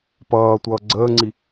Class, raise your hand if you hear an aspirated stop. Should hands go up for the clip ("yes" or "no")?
no